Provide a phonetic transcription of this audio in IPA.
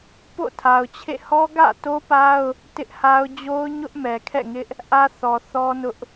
p o̰˦˨ tʰ a˨ ʊ̯ t͡ɕʰ ḛ˦˨ h ɔ˦ ɡ ä̰˦˨ t o˦ p a˦ ʊ̯ | t ɪ˦ ʔ h a˦ ʊ̯ d͡ʑ o˦ ʊ̯ ɲ ʊ˦ ʔ m ɛ˨ kʰ ɛ̰˦˨ ŋ ɪ˦ ʔ | ʔ ä˦ θ ɔ˨ θ ɔ˦ n ʊ˦ ʔ

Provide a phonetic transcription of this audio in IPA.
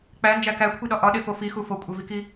k͡p æ n d͡ʒ æ k æ kʷʰ i ɗ ɒ ʔ ɒ ɗ e f o f i x u f o kʷʼ e v i k i

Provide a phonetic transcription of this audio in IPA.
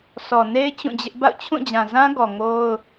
s ɔ˨ n e˦ ɪ̯ t͡ɕ ũ˦˨ d͡ʑ ɪ˦ ʔ b a̰˦˨ ʊ̯ t͡ɕʰ ũ˦˨ d͡ʑ ã˨ z ã˦ ɡ ɔ˨ ŋ o˦ ʊ̯

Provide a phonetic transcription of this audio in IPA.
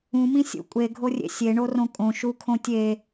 ũ m ĩ sʲ ṵ kʷʼ e ɡʱ o rʲ ḛ sʲ e ɳ o r õ kʼ õ ʃ u kʰ õ tʲ e

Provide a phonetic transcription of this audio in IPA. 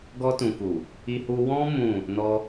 ɡ ɔ˧ t ũ˨ k u˨ | i˧ h u˧ w ɔ̃˦ m ũ˦˨ | n ɔ˦

